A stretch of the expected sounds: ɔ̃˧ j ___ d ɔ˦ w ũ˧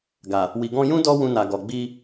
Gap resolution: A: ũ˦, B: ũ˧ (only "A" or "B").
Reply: A